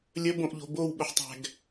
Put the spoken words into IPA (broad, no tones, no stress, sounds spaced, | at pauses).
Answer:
lʲ ə b õ ʔ ʎ o̤ b o w ɓ ʊ ħ tˤ æ̤ ɡ